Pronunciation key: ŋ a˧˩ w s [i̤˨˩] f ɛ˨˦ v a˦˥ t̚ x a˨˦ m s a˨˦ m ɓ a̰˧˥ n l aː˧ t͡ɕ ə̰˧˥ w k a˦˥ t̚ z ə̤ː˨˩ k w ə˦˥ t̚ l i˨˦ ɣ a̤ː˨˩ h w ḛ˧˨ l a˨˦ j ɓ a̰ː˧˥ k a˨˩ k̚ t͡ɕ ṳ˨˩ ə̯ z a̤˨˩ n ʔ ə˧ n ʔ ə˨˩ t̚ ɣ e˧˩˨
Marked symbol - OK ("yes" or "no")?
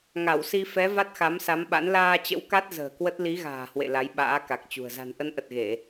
no